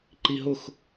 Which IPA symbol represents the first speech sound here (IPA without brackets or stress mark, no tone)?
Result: ǃ